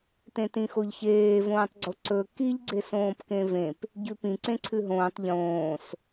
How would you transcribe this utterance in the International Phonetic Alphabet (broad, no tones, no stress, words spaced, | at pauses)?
tẽtĩxoʎçeː võːtˤɡ͡ǀoǀɵ kiʎ ɡ͡ǀesõːpkẽvẽp | ɟʉpĩ ǀẽǀʰʉɦõːtˤ ʎõːs